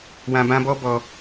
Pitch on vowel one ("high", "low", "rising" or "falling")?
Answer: high